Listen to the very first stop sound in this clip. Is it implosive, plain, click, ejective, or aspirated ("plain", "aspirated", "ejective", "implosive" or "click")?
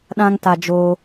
implosive